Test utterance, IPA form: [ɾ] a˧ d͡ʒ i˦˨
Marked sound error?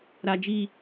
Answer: no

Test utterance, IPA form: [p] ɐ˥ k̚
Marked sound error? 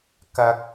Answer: yes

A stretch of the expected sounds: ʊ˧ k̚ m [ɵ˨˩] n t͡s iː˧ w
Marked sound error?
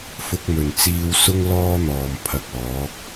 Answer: no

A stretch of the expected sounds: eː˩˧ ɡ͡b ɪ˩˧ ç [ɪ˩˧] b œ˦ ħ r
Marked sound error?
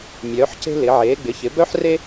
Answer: no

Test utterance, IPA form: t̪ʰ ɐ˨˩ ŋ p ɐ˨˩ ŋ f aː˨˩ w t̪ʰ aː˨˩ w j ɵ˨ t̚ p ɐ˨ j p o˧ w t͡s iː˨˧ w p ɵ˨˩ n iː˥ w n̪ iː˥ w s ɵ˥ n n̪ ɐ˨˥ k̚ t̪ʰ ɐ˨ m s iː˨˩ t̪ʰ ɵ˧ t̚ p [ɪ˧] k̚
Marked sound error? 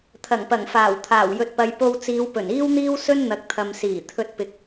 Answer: yes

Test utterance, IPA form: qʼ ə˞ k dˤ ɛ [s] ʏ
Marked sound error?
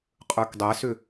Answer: no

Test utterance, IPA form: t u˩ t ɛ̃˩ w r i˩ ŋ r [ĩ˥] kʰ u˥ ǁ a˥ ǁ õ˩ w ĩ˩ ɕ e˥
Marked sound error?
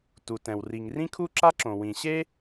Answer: no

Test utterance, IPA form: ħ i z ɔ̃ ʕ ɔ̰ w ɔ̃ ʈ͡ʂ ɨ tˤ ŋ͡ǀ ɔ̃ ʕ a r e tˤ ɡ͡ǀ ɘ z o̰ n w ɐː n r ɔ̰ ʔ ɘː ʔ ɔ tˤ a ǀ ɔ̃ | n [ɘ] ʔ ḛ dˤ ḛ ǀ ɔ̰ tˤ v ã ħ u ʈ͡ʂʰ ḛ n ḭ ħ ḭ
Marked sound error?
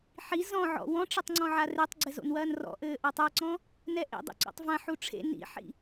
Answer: yes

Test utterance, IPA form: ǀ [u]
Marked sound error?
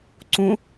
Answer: yes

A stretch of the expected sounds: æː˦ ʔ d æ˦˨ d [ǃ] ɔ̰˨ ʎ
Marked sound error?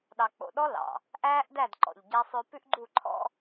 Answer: no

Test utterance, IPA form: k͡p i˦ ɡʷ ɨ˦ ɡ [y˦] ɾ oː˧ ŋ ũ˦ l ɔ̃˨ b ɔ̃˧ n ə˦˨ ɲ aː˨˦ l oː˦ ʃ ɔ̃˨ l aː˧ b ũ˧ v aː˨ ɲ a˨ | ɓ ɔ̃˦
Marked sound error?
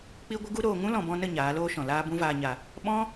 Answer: yes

